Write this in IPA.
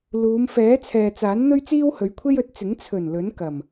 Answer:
luː˨˧mfɛː˨˥ t͡sʰɛː˨t͡saː˨˥n n̪ɵ˥ɥt͡siː˥whɵ˨˧ɥkʷʰe˥j ɵ˨˥t̚t͡sɪ˨˥ŋ t͡sʰɵ˨˩n lɵ˨˥nkɐ˨˩m

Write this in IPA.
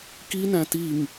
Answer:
kinæ̃ tiŋ

